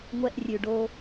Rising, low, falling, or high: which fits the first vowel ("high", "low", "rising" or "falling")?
high